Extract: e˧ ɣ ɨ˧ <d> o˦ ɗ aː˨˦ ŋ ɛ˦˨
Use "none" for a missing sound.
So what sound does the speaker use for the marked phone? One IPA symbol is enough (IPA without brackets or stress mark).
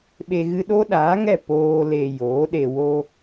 ɗ